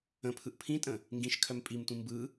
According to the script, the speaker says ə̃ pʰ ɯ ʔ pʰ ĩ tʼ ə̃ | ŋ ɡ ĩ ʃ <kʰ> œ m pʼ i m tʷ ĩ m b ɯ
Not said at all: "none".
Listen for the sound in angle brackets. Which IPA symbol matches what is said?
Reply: kʰ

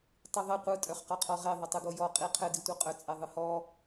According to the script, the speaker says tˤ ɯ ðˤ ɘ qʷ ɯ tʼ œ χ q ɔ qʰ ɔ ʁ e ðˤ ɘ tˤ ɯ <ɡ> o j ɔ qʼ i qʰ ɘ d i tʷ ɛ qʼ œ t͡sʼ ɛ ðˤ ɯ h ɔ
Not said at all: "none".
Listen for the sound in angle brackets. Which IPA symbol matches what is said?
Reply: ɡ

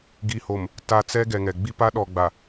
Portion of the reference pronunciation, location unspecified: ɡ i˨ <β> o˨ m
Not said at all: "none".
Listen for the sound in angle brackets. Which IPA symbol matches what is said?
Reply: h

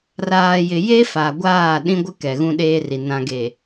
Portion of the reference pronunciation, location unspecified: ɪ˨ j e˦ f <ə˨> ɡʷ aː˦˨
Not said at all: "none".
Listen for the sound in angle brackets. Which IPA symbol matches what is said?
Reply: a˨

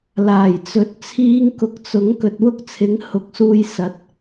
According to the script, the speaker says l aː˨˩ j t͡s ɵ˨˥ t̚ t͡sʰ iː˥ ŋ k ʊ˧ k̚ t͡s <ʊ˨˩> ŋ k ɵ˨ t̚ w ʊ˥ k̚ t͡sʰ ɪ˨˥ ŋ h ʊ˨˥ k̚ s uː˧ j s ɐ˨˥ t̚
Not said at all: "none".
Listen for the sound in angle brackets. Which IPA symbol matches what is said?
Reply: ʊ˨˥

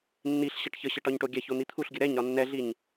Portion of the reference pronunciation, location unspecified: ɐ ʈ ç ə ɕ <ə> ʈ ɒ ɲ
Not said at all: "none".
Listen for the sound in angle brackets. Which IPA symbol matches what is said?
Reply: ə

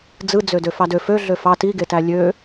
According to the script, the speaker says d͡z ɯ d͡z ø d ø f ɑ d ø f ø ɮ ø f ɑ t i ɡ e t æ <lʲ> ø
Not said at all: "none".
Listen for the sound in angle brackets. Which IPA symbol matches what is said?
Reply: lʲ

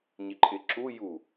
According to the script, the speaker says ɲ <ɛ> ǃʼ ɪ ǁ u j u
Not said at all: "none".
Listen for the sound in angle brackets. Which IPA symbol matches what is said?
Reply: ɪ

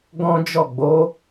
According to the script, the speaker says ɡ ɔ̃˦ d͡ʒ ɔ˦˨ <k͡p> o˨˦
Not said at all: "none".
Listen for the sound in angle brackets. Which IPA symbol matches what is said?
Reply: ɡ͡b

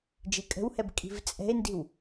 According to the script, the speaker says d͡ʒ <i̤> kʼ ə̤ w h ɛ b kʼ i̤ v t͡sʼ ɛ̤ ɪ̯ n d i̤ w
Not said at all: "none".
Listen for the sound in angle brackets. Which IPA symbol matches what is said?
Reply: i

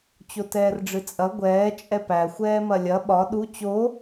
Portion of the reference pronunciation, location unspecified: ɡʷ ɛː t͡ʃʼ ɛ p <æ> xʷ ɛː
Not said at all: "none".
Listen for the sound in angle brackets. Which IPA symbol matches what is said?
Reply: æ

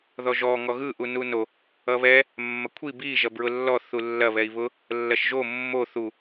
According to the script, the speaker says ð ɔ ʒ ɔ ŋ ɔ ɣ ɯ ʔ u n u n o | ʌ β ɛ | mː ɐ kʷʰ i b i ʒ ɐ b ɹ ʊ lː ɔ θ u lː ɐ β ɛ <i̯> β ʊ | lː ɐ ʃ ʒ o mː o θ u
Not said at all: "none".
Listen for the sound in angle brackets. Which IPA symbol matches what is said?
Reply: i̯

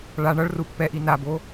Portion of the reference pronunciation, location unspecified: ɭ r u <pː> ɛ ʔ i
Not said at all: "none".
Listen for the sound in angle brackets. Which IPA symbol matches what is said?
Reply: pː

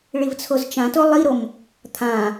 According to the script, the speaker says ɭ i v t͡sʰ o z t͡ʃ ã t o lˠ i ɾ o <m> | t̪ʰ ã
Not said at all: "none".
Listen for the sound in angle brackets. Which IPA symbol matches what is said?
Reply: m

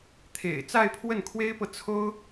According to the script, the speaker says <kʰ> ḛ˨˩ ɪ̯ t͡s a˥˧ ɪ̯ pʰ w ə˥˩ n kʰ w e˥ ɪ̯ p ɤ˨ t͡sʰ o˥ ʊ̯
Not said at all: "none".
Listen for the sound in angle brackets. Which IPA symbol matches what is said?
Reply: t̪ʰ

